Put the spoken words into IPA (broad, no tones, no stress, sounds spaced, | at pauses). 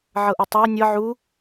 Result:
ʕ ɤ ʔ o tˤ a ɐ̯ nʲ ɤ ʕ u